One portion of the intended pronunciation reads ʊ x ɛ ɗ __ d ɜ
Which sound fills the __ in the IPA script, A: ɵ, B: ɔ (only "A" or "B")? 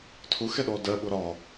B